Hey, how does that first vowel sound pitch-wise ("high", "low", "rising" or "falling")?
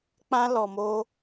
high